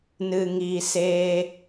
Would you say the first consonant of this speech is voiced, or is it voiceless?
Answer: voiced